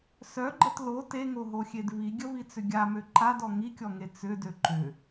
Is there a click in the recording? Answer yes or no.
yes